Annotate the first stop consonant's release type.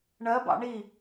plain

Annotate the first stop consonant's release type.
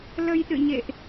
implosive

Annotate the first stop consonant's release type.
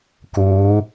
plain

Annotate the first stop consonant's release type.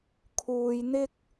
aspirated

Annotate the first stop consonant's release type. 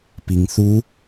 plain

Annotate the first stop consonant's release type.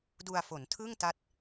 plain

